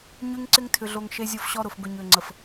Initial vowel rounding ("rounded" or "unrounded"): rounded